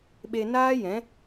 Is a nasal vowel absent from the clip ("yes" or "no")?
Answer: no